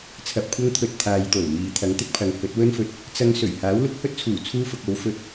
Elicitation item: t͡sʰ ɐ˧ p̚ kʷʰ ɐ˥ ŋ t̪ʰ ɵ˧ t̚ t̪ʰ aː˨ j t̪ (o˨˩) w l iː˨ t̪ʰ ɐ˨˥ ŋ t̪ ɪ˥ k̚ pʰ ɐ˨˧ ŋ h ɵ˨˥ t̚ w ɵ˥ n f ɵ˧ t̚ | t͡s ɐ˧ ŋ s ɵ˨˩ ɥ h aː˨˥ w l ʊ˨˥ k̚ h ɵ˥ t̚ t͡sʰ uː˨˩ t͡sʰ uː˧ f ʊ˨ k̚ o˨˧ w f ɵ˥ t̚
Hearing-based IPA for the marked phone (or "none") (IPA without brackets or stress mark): o˨˩